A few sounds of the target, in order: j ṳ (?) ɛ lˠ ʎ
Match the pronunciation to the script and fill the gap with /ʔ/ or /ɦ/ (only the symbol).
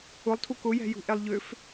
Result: ʔ